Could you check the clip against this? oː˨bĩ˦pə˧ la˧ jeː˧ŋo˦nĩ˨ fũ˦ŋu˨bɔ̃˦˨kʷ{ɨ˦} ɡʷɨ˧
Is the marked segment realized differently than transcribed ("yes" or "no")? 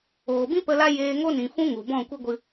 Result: no